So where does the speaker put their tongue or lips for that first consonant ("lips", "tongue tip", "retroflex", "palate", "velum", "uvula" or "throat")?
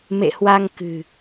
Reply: lips